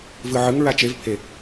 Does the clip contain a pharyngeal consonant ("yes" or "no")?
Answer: yes